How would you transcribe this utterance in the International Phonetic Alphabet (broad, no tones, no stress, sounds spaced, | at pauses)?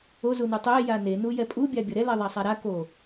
o z u n u tˤ e j a n e n u j ɛ pʼ u bʲ a bʲ ʌ ɾ ɛ l ɛ ðˤ a sˤ a ɾ a k o